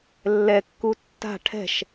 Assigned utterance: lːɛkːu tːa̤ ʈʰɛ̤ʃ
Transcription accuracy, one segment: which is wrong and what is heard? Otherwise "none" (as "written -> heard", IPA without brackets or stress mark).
none